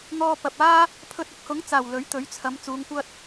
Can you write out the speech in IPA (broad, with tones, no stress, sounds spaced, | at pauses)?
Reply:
ŋ ɔː˧ p ɐ˨ p̚ aː˥ | pʰ ɵ˧ t̚ ʊ˨˥ k̚ h ʊ˨˥ ŋ t͡s aː˨˩ w l ɵ˨˥ ɥ t̪ ɵ˨˥ ɥ t͡sʰ ɐ˨˧ m t͡s uː˨˧ ŋ kʷ ɐ˥ t̚